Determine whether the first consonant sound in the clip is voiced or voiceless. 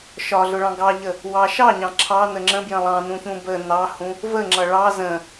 voiceless